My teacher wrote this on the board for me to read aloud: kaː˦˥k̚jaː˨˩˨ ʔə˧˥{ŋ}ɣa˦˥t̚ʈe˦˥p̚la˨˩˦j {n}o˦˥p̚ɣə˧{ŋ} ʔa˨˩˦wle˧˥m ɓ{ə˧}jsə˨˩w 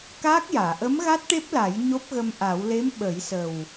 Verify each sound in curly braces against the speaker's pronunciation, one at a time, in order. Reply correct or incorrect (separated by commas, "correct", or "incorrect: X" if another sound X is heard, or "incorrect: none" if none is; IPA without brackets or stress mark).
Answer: incorrect: m, incorrect: ɲ, incorrect: m, incorrect: ə˨˩˦